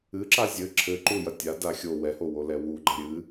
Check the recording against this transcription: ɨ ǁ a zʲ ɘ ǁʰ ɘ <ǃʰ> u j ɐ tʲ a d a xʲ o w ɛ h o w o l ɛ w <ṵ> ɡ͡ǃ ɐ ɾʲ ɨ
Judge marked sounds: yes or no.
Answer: no, no

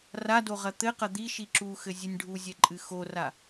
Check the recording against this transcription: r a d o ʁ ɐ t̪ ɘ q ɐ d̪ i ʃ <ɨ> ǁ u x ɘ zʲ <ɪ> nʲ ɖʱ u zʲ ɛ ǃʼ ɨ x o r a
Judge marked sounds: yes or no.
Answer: no, no

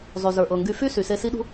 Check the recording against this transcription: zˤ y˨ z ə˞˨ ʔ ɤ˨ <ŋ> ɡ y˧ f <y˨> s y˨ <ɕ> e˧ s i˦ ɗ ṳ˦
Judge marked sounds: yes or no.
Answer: yes, no, no

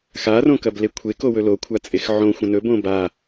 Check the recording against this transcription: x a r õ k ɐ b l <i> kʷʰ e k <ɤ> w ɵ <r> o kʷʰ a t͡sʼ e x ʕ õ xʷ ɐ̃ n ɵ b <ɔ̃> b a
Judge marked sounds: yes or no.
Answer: no, no, no, no

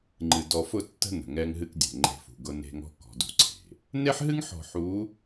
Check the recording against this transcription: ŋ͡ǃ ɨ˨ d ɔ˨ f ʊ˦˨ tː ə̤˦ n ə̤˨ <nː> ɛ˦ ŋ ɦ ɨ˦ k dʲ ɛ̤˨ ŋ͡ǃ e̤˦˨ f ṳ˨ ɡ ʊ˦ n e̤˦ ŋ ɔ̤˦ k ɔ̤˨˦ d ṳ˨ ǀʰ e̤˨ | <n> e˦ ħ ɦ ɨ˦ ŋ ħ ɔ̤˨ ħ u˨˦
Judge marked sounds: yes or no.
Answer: no, yes

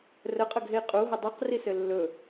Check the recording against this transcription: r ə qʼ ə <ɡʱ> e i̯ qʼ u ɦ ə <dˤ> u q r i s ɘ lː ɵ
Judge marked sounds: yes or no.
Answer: yes, yes

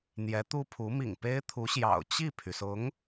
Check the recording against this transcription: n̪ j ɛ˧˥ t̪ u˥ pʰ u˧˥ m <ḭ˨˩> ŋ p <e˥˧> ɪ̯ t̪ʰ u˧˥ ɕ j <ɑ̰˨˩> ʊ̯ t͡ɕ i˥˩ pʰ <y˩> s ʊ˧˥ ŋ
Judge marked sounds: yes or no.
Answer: yes, no, yes, yes

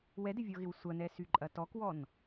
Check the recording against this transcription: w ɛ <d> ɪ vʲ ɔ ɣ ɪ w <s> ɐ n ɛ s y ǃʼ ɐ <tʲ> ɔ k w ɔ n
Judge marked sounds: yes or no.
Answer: yes, no, no

